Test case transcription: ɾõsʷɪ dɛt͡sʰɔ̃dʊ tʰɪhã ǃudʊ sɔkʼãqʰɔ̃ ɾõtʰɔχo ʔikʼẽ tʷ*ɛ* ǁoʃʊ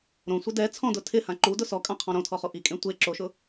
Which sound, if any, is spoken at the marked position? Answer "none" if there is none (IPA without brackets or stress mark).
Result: e